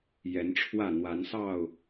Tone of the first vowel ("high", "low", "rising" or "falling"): rising